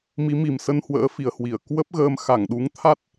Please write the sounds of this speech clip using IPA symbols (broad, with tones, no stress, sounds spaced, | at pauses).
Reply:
m i˨˦ m i˨˩ m s ə˧ n h w ə̰ː˧˥ f i˨˩ ə̯ h w i˧˩ ə̯ k w ə˦˥ p̚ ɣ əː˧ m x a˧˩ ŋ ɗ u˨˦ ŋ t̪ʰ a˦˥ t̚